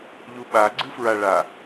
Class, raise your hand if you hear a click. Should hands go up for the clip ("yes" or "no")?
yes